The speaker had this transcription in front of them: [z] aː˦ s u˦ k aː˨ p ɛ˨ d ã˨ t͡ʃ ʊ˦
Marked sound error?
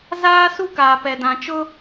no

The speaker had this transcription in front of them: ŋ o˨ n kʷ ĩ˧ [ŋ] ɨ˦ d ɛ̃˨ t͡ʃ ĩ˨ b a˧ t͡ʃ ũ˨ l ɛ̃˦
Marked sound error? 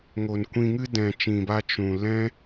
no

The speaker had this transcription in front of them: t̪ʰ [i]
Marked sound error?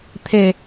yes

